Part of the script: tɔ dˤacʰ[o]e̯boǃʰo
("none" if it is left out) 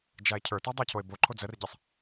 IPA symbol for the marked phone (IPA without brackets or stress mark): o